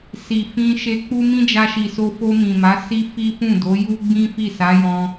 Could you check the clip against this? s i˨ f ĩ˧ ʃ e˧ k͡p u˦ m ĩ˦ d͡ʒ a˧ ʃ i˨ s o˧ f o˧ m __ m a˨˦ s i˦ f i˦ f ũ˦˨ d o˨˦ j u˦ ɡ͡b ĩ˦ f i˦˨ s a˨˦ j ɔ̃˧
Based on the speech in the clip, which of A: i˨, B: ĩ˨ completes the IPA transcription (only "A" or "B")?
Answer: B